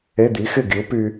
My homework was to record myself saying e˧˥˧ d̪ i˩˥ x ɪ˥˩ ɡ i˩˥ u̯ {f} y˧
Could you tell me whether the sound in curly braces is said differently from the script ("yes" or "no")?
yes